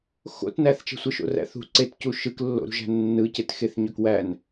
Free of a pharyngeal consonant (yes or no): yes